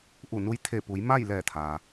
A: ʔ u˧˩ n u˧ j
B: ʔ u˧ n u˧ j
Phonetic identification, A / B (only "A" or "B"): A